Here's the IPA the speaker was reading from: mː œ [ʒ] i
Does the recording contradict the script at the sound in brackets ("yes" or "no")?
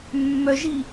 no